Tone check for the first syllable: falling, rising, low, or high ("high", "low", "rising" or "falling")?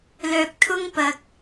low